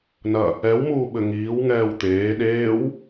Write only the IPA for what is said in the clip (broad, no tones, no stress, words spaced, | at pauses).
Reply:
nɐ | ɛwmuː ɓɘŋiːw ŋɛːwt̪eː ɗeːw